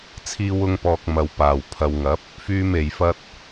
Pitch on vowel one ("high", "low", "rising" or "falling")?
high